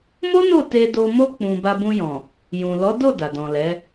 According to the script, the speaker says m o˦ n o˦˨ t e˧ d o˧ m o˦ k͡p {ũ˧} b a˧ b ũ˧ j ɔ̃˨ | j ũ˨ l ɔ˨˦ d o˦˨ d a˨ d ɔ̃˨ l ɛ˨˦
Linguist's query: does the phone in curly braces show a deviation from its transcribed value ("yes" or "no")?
no